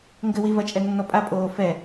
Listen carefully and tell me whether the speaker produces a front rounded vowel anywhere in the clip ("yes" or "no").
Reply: no